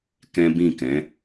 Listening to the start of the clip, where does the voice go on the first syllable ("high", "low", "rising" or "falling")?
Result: high